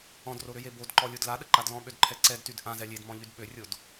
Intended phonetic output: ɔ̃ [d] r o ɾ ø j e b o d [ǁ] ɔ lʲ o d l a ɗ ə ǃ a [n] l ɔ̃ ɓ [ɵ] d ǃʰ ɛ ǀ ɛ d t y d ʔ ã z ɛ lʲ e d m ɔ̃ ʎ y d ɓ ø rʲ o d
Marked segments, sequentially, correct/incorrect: correct, incorrect, incorrect, incorrect

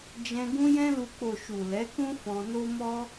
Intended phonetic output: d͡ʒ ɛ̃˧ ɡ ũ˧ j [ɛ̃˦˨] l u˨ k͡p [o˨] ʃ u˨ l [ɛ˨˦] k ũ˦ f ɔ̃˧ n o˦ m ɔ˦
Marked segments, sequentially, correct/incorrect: incorrect, correct, correct

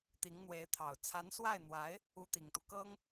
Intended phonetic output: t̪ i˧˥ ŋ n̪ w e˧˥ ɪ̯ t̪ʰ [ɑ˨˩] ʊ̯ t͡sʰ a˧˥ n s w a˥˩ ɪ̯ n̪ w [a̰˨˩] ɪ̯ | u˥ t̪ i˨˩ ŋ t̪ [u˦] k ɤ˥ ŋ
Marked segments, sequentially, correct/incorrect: correct, incorrect, correct

